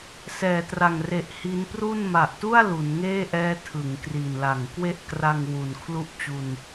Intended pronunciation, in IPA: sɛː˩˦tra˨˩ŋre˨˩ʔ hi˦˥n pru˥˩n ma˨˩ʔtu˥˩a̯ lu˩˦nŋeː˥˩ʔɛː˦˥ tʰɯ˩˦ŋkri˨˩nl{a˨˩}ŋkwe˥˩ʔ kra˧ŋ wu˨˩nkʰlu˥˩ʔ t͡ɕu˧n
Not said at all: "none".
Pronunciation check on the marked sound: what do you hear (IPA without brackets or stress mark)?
a˨˩